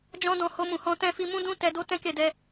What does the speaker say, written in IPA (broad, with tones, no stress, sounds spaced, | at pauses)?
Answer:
d͡ʒ ɔ̃˦ d ɔ̃˦˨ h o˧ m ũ˨ h ɔ̃˧ t ɛ̃˧ f i˧ m ũ˦ d ũ˦ t ɛ˧ d o˦ t ɛ̃˦ k e˦˨ d ɛ˧